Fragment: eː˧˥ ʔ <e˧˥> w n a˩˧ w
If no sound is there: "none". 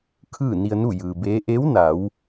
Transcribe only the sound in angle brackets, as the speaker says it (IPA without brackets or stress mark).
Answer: e˧˥